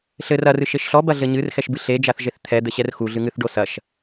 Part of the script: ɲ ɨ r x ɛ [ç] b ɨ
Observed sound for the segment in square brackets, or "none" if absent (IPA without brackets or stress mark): ʃ